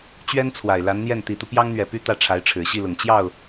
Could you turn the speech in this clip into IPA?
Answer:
t͡ɕɥɛ˥n t͡sʰwa˨˩ɪ̯la˧˥nn̪jɛ˥˩n t̪i˨˩t̪u˦ pjɑ˥ŋn̪ɥɛ˨˩py˥ t̪ä˥˩ʈ͡ʂʰa˧˥ɪ̯ʈ͡ʂʰɻ̩˨˩ ɕi˥˩lʊ˨˩ŋ t͡ɕjɑ˥˩ʊ̯

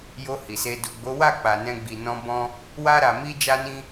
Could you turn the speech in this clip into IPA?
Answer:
jo˧ hi˨se˧ du˨ɡ͡bo˨˦wa˦˨ k͡pa˨nɛ̃˧ɡ͡bi˨nɔ̃˧ bɔ̃˧ | wa˦ɾa˧mi˦ d͡ʒa˦nĩ˦

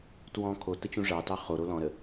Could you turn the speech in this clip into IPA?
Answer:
twɔ̃ kʰotə t͡ɕũʐɑtɑ χo ɾolɔ̃ɾə

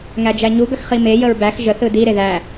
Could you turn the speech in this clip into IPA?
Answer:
ŋæd͡ʒæɲuɡɐx χime jəɹbæx ʒəθɯ di ɾeðæ

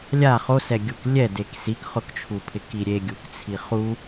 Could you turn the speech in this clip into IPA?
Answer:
lʲa χosɛɡʲuk lʲɛdek sikχʊkt͡ʃʰupʰɪ kiɾʲeɡʲuk t͡sʰiχu

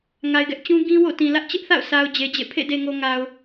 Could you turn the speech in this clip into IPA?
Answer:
ŋa˨ɪ̯ɡɛ˦ʔt͡ɕũ˦ ɡĩ˦wo̰˦˨tĩ˨ lä˦ʔt͡ɕɪ˦ʔθa̰˦˨ʊ̯sʰa˨ʊ̯ d͡ʑe˨d͡ʑḛ˦˨ pʰḛ˦˨de˨ŋo˨ ŋa˨ʊ̯

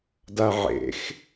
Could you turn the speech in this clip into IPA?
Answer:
daʕḛx

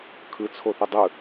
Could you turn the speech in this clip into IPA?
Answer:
kʰɯ t͡sʰoθudˤɯ

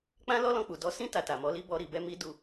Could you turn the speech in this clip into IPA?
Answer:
k͡pã˦lɔ˦lɔ̃˧k͡pu˨ dɔ˧ sĩ˦ ta˧ta˨mɔ˨˦li˦ bɔ˧ɾi˨bɛ˧ mi˦ du˧

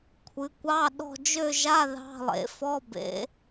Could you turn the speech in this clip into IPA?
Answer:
kʷʰɨ˩˧kʷɑ˧˥˧ ɗɔ̤˥˧ d͡ʒø˥˧ʒa˧˥˧ ðɑ̤˧˥˧lˠḛ˩˧ fɔ˧˥˧bḛ˩˧

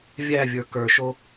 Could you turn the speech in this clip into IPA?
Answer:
vʲævʲə˞ kə˞ʃo

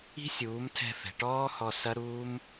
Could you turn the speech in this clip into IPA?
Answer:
i̤˦sʲuː˨˦mtʰɛ̤˧ fɛ̤˨ʈɔː˦hɔ˧ sɐ˦ ɾuː˦m

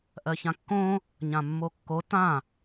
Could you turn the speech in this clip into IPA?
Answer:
ʔɜçãkːõ | ɲãmːokːo tã

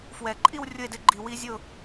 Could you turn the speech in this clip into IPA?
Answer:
fwɛ˨˩˦ǃʼi˥˧w rʲʊ˥˧e̯dɪ˦˥ɡ͡ǃi˧ wi˦˥zʲʊ˥˧

